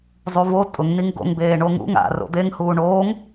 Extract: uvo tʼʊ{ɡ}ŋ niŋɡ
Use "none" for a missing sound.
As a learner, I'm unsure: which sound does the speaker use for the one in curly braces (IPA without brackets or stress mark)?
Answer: none